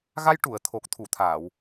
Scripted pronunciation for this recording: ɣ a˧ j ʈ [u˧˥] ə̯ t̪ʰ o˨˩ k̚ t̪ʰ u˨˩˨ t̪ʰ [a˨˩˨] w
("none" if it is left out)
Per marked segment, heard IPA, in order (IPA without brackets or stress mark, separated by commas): u˨˩˨, aː˨˩˨